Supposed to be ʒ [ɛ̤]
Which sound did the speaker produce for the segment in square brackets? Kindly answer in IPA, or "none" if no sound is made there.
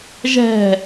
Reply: ɛ̤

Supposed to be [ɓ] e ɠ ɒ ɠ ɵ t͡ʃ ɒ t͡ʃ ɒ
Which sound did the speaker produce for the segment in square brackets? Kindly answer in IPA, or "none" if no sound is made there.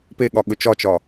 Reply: p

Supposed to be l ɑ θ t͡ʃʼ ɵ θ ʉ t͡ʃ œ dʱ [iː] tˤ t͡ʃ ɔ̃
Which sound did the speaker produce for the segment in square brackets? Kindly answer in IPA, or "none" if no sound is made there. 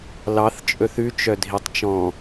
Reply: i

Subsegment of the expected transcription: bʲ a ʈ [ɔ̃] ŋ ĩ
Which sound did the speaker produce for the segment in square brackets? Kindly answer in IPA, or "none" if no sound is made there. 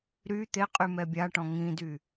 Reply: ɔ̃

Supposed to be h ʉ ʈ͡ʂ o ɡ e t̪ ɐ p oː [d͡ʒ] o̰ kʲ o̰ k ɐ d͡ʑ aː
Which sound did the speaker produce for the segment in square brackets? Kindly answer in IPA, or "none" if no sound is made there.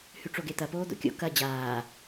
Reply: d̪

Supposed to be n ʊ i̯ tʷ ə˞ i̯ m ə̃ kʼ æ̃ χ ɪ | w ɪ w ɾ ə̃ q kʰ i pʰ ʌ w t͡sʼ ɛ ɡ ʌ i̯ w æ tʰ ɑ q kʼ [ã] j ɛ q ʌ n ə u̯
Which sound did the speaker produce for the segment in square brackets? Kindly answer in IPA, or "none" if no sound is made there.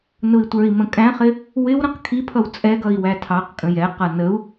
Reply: ə̃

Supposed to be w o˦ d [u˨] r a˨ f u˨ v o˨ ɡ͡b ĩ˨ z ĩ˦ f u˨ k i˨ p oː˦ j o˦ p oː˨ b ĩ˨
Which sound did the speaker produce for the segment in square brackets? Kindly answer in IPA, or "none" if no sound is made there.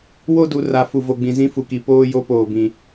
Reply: u˨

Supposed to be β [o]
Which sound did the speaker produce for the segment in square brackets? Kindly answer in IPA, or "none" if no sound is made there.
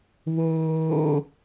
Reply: oː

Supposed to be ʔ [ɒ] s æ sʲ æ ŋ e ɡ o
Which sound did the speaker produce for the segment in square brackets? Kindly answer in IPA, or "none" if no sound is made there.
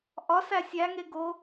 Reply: ɒ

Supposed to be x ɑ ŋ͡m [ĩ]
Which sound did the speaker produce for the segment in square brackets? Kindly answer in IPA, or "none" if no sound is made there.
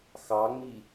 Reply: i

